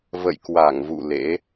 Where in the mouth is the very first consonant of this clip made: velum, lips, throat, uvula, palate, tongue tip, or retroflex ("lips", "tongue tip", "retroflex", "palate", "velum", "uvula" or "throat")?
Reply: lips